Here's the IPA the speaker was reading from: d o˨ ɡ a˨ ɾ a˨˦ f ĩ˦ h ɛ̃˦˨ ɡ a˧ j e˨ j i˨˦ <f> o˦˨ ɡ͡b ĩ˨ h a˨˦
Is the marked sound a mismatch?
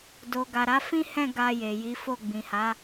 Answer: no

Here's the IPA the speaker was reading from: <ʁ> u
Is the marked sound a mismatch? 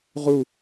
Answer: no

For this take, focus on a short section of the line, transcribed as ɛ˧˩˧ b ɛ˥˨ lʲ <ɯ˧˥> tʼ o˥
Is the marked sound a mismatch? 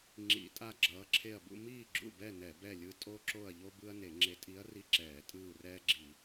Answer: no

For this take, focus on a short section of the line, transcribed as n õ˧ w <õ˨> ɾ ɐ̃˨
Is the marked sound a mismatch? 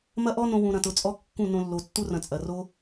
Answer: yes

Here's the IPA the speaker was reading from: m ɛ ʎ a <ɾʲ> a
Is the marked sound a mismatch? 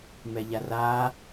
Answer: yes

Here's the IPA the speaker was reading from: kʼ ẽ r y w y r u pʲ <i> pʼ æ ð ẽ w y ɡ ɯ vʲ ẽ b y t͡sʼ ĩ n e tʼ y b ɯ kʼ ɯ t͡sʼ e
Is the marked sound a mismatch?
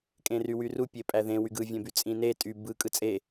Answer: yes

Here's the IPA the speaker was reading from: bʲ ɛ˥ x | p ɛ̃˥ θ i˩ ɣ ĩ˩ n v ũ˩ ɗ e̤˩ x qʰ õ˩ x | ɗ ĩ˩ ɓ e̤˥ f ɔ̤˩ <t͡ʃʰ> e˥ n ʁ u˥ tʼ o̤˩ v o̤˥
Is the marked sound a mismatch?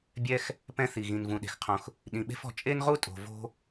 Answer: yes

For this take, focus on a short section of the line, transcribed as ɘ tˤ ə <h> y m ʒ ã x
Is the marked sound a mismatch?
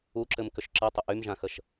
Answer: yes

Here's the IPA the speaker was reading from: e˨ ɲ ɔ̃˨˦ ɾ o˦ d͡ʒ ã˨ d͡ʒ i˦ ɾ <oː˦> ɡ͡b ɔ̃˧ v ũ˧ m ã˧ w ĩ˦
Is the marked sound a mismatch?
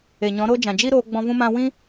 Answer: yes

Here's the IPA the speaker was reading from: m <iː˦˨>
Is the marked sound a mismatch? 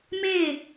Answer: yes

